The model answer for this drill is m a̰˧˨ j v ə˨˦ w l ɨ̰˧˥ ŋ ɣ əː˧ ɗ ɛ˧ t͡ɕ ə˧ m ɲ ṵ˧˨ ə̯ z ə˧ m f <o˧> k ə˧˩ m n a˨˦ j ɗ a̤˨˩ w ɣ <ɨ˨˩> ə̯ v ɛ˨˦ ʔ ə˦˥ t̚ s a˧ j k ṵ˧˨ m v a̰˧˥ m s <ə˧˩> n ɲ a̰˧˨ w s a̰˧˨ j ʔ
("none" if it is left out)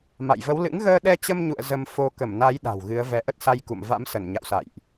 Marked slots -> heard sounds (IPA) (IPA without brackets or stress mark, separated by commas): o˧, ɨ˨˦, ə˧˩